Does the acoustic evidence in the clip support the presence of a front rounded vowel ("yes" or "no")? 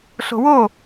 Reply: no